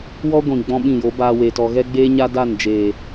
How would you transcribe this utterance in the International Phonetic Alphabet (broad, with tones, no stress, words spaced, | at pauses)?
wɔ˦ɡʷĩ˨ ɡ͡bɔ̃˦ɓĩ˦˨jo˨˦baː˧ weː˨tɔ˨ɣɛ˦ ɡ͡beː˦ɲa˦ da˦˨nd͡ʒeː˨